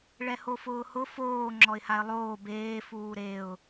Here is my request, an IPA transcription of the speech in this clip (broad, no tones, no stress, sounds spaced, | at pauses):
ɭ ɛ h o f ʊː h ʊ f oː ŋ͡ǁ ɔ ɪ̯ h a ɪ̯ lˠ oː b eː f uː ɾ e ʊ̯